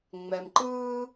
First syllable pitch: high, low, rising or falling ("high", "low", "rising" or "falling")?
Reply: low